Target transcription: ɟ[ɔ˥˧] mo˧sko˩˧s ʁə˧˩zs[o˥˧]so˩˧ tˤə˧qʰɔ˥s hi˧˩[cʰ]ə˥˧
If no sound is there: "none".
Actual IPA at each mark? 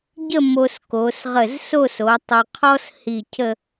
ə˥˧, o˥˧, cʰ

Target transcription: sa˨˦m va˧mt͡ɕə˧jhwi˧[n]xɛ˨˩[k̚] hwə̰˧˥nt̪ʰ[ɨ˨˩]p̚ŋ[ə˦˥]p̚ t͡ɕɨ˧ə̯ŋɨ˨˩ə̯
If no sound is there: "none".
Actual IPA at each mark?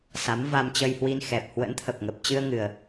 n, p̚, ə˨˩, ə˨˩

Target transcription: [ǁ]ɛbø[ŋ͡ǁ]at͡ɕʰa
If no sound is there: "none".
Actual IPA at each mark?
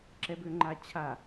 ǁ, ŋ͡ǃ

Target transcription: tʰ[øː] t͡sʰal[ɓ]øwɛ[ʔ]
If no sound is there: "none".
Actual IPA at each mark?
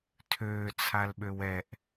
øː, ɓ, ʔ

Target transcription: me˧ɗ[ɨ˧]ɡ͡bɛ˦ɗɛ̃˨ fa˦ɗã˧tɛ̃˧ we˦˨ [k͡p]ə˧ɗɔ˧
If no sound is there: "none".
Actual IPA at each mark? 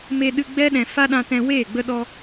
ɨ˧, ɡ͡b

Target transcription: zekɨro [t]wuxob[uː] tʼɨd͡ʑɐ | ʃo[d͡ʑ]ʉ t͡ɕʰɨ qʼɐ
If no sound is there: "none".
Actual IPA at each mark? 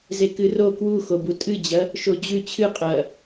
k, u, d͡ʑ

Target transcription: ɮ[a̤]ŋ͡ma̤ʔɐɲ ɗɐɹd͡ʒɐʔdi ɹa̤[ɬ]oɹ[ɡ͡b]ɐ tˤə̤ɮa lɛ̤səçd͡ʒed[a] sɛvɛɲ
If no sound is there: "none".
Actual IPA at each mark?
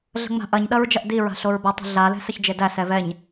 ə̤, ɬ, b, æ

